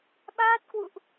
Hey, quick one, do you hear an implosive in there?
yes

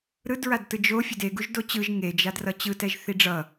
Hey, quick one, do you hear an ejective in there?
no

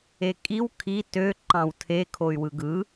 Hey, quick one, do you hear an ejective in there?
yes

